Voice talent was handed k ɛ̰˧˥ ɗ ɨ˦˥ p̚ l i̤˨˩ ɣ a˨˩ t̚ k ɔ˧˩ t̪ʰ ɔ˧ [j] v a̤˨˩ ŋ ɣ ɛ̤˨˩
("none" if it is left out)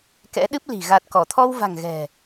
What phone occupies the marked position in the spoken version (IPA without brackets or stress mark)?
w